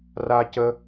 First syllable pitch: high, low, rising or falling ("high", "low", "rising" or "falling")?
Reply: high